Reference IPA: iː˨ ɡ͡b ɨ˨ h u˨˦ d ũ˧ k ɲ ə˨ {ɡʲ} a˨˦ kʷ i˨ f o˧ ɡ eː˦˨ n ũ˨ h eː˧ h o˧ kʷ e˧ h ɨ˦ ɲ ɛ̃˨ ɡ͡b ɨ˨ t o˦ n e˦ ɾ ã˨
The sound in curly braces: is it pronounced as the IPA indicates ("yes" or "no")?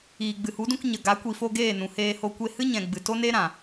no